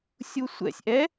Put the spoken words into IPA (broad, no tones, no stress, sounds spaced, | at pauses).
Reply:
sʲ u sʷ ɛ̰ sʲ ʔ ɛ